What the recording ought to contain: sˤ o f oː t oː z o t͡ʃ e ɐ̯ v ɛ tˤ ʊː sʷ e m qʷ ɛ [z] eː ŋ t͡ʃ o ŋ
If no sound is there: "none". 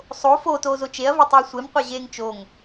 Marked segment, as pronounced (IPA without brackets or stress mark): ʑ